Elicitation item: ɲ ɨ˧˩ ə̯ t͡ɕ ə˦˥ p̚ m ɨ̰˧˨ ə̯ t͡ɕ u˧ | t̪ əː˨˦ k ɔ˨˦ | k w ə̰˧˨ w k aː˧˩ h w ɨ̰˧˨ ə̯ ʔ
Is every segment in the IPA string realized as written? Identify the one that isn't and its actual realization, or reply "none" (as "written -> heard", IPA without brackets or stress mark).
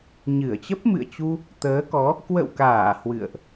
none